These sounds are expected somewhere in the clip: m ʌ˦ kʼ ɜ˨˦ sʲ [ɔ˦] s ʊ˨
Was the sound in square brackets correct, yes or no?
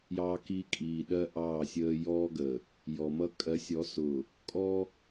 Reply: no